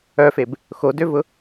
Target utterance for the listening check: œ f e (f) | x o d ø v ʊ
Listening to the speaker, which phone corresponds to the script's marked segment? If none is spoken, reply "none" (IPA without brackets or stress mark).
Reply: b